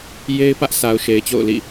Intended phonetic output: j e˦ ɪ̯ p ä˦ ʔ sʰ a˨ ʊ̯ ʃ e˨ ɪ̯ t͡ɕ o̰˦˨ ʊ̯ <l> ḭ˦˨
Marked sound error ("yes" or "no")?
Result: no